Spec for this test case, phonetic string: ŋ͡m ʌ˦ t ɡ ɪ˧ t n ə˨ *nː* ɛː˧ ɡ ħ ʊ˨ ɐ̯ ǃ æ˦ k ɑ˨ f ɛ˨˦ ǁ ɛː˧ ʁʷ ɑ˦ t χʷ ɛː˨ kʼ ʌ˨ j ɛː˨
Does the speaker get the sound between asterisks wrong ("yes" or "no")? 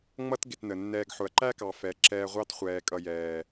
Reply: no